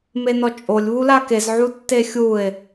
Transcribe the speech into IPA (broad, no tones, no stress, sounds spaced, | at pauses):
m e n ɔ t͡ʃʼ o lʲ β u l a k e z ʕ u tː e xʲ u e̯